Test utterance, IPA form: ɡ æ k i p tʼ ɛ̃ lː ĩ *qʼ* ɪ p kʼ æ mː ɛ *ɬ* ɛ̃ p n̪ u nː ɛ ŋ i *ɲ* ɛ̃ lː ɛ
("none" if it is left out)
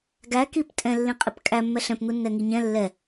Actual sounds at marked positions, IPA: qʼ, ɬ, ɲ

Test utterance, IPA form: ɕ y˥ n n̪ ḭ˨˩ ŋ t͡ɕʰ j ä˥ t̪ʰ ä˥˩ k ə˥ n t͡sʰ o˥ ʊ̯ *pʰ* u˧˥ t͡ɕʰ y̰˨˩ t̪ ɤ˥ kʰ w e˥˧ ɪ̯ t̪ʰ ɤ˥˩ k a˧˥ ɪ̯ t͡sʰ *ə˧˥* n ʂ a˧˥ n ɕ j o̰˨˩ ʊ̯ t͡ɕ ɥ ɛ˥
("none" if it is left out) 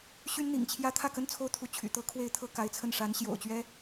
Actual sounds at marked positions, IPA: t̪ʰ, ə˥˩

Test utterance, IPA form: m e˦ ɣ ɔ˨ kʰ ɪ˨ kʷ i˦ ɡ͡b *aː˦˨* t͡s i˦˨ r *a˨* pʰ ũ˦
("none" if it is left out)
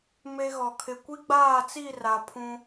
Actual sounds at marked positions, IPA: aː˦˨, a˨

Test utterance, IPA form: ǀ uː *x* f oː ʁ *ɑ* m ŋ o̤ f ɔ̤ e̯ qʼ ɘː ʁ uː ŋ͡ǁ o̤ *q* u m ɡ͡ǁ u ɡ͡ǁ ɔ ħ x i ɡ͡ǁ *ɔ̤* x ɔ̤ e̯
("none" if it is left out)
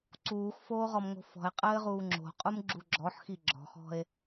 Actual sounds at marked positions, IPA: x, ɔ, qʼ, ɔ̤

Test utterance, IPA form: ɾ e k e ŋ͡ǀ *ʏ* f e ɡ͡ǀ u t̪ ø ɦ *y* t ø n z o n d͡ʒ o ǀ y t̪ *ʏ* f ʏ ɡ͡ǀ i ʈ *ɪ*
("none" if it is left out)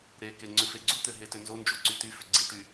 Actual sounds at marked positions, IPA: ʏ, e, y, y

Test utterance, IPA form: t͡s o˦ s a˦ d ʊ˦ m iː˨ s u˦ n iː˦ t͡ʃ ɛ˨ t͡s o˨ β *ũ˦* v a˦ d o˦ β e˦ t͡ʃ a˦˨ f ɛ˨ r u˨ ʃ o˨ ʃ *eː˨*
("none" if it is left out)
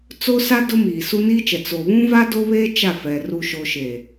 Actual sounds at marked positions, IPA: ũ˦, e˨

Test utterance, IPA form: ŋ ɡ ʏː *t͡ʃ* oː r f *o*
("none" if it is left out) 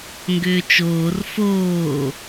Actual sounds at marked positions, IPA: t͡ʃ, oː

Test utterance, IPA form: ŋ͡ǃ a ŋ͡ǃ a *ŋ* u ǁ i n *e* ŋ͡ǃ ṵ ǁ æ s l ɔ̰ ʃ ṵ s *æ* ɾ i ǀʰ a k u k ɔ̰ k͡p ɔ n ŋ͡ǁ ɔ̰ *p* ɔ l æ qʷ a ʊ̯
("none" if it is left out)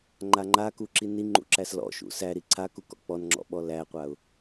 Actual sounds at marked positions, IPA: k, i, æ, ɓ

